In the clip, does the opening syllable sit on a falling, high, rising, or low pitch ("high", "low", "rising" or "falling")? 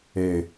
low